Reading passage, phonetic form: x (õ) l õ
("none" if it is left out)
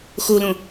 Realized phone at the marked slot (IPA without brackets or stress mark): o